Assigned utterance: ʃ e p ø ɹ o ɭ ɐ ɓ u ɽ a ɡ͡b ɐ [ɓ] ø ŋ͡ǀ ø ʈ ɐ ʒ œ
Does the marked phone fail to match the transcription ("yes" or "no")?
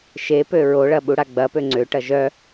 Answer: yes